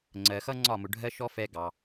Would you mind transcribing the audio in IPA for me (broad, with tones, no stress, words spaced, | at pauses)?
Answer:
ŋ͡ǀɜ˩xʌ˥ ŋ͡ǀɒ˥˩mʊ˩ ɖʱɜ˥ʃɔ˥fɛ˧ ɡɑ˩